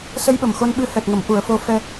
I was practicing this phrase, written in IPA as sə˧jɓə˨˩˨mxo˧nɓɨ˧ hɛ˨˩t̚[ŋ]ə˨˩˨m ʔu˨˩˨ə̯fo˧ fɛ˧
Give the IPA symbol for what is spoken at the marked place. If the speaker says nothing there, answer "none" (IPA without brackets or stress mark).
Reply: ŋ